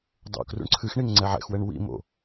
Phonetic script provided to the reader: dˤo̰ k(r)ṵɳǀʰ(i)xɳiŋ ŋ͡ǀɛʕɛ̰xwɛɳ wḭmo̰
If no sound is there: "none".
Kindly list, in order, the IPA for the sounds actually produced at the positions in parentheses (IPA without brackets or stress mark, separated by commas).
r, ɨ